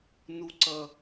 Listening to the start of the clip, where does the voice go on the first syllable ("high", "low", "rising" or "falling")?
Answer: high